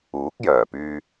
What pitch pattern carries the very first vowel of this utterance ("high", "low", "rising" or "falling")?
rising